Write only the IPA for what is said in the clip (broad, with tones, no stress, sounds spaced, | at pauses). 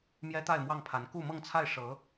m j ɛ˥ t̪ a˥˧ ɪ̯ m w ɑ˥˩ ŋ pʰ a˧˥ n k u˥˧ m ɤ˥˧ ŋ t͡sʰ a˥˩ ɪ̯ ʂ ɤ˧˥